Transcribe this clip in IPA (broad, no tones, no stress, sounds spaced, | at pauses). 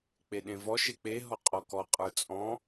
k͡p e ɗ ẽ v ɔ ʃ e k͡p e ɦ ɔ qʼ ɔ k ɔ qʼ ə˞ t͡sʼ ɔ̃